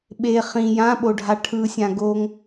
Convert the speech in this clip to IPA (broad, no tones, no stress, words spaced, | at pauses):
ɓe χĩ jãɓoɖʱa ʈʰɯsʲã ɡoŋ